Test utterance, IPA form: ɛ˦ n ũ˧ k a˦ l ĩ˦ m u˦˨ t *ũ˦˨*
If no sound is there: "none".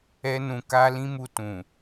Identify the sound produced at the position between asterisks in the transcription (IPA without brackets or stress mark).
ũ˨